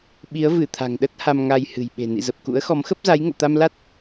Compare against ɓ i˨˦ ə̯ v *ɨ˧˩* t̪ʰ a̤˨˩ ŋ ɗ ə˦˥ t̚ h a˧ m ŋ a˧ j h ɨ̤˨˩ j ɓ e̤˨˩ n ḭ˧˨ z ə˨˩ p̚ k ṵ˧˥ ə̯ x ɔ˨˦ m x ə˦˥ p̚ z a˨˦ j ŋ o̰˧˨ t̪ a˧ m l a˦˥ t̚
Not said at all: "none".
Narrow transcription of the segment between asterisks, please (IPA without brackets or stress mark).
ɨ˧˩